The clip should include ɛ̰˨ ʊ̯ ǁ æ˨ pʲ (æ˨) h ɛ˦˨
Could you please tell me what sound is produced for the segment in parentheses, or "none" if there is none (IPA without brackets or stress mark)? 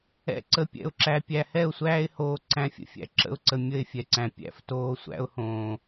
æ˨